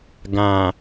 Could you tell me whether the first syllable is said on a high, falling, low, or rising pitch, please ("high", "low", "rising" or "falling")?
low